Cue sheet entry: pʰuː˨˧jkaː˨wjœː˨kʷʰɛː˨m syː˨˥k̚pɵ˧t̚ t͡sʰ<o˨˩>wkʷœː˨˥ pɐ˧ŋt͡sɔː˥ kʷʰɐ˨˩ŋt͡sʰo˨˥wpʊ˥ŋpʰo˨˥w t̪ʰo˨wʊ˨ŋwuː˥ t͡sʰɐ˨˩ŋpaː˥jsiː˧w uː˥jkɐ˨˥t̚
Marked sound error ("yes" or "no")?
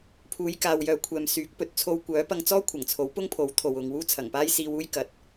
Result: yes